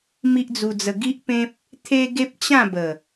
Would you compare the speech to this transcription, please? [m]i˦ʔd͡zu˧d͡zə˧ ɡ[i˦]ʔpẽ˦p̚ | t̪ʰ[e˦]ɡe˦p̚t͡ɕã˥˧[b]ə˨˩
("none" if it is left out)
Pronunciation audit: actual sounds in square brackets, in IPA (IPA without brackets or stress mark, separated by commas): m, i˦, e˦, b